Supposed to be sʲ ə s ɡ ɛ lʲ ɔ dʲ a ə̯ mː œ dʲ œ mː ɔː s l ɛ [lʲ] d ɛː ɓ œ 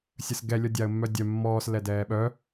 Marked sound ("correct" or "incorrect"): incorrect